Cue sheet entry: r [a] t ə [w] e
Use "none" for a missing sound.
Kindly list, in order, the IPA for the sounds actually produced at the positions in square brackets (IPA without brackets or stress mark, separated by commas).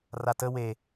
a, w